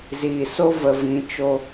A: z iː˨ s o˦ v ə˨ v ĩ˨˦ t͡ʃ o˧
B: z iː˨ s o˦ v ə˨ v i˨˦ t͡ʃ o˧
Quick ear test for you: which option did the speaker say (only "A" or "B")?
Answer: A